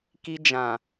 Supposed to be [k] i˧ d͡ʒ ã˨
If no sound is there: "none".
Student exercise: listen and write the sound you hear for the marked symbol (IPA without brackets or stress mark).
k